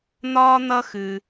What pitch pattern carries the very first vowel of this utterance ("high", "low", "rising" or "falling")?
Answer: high